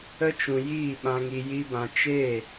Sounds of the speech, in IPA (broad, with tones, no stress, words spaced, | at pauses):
ə˧t͡ʃũ˨ jiː˦˨ ɓã˧ŋi˧ji˦bã˧ t͡ʃeː˦˨